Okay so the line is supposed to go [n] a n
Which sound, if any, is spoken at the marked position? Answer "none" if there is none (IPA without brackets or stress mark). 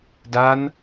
d